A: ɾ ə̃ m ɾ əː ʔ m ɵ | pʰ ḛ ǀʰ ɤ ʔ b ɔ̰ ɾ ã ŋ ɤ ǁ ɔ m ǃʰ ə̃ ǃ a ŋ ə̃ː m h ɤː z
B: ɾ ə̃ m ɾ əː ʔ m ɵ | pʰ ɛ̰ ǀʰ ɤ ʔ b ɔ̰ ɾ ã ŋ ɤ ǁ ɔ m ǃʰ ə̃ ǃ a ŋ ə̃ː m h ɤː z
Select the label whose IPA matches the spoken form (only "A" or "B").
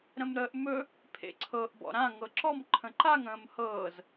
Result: A